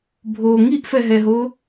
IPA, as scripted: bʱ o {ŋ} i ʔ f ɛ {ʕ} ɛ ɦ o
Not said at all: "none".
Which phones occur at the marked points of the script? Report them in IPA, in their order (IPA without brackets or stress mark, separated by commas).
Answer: ŋ, ɦ